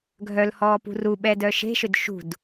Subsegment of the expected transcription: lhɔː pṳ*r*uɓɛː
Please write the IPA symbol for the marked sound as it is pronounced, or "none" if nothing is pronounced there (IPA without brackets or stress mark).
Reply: r